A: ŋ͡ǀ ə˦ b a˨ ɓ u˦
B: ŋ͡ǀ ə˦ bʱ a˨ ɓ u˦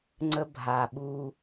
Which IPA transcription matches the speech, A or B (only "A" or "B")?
B